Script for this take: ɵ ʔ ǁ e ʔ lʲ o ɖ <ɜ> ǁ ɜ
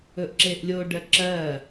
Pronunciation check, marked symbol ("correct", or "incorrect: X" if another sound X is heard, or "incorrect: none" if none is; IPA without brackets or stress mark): correct